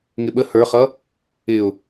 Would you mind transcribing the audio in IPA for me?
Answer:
ŋ ɪ ɓ ə h ə˞ χ ʌ | ɪ ʊ̯

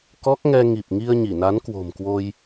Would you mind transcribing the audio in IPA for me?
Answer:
k ɔ˦˥ k̚ ŋ ɛ˧ ŋ i˨˩ p̚ ŋ i˧ ə̯ ɲ i˧˩ n a˨˦ n k w o̤˨˩ m k w o˧ j

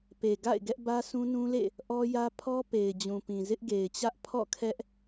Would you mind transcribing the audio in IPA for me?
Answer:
p e˨ ɡ a̰˦˨ ɪ̯ ɡ ɛ˦ ʔ b ä˦ sʰ ũ˦ n ũ˦ l ḛ˦˨ | ʔ ɔ˦ j ä˦ pʰ ɔ˦ p e˨ ɪ̯ d͡ʑ ũ˨ p ĩ˨ z ɪ˦ ʔ ɡ e˨ ɪ̯ t͡ɕ ä˦ ʔ pʰ ɔ̰˦˨ kʰ ɛ˦ ʔ

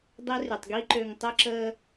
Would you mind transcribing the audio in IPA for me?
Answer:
dˤ e˦ r y˨ tˤ ɡ i˦ ǃ ø˨ ŋ tˤ ə˦ ǁ əː˦

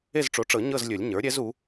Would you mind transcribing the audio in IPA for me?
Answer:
e˦˨ z ʈ͡ʂ o˩˥ ʈ͡ʂ ɤ˨˩˦ ɲ ɤ˦˨ z lʲ ɵ˨˩˦ lʲ ɲ ə˞˩˥ ɾʲ ɛ˧˥ z u˩˥

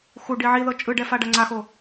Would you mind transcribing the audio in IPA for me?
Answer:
x u ɖ i ʕ i ð ɤ t͡ʃʼ ɯ ɖ ɛ f a ɖ a ŋ͡ǀ a x o

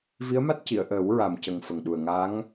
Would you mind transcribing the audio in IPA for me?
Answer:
v i˧˥ ə̯ m a˦˥ t̚ c i˨˩˨ ə̯ ʔ əː˨˩˦ w ɹ a˨˩ m c ə˨˩ ŋ f ə˨˩ ŋ ɗ u˨˩ ə̯ ŋ a˧˥ ŋ

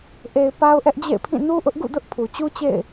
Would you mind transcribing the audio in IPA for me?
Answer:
ʔ e˨ ɪ̯ p a˦ ʊ̯ ʔ ɛ˦ ʔ d͡ʑ ḛ˦˨ ɪ̯ pʰ ĩ˦˨ n u˦ ʔ ʊ˦ ʔ ɡ ṵ˦˨ d ʊ˦ ʔ pʰ u˨ t͡ɕ u˦ t͡ɕ ḛ˦˨ ɪ̯

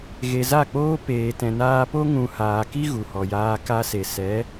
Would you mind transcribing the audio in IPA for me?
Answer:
ɣ e˨ z a˦˨ k͡p oː˦ p eː˨ t ɛ̃˨ n aː˧ p o˦ ŋ ũ˧ h aː˨ k i˦ ɣ u˨ h ɔ˨ j aː˧ k a˧ s e˨ s ɛ˨˦

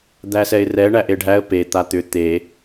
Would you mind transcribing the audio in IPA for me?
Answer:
d̪ æ s ɛ ɪ̯ r ɛ ɳ æ ʔ e ɖʱ æ ə̯ p e t̪ a t̪ ʏ t̪ e

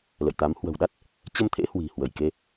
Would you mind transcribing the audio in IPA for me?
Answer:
l ə̰˧˨ j t̪ a˨˦ m h w ə̤˨˩ w ɗ a˦˥ t̚ | t͡ɕ ə˧ m t̪ʰ ḛ˧˥ h w i̤˨˩ h w ə˧˩ j k e˧

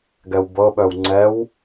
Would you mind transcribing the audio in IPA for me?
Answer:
ɡ ɛ w b ɤ ɓ œ w ŋ͡ǀ ɛ w

